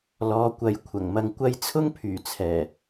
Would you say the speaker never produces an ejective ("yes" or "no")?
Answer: yes